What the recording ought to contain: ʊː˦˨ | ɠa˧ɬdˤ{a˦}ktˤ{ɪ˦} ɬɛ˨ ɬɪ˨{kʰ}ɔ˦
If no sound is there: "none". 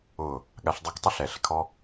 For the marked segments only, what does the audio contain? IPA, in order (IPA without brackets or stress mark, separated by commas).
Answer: a˦, ɪ˦, kʰ